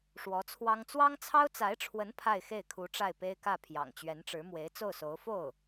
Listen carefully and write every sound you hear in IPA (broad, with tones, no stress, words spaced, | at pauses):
ʂwɔ˧˥t͡sʰwɑ˥ŋ t͡swɑ˥ŋt͡sʰɑ˥ʊ̯t͡sa˧˥ɪ̯ʈ͡ʂʰwə˧˥n pʰa˥˧ɪ̯xe˥˩ɪ̯ kʰu˧˥ ʈ͡ʂa˥˩ɪ̯pe˥ɪ̯kä˥˩pʰjɑ̰˨˩ŋ t͡ɕɥɛ˧˥nʈ͡ʂɻ̩˧˥ mwe˧˥ɪ̯t͡so˥˩ʊ̯so˧˥ʊ̯ fo˥˩ʊ̯